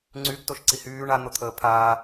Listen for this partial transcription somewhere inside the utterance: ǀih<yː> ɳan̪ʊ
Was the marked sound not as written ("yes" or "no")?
no